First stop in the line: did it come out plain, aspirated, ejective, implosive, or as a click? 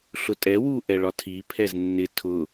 ejective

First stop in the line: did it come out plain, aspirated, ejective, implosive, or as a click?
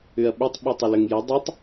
implosive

